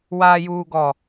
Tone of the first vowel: low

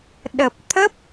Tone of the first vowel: low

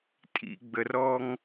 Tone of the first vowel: low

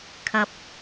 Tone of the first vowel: low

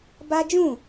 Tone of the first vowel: high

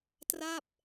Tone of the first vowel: falling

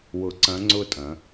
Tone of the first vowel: rising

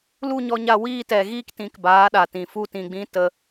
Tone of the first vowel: falling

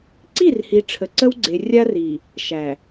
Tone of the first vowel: falling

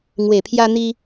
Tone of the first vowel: low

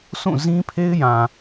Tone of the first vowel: falling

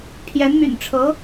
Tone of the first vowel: rising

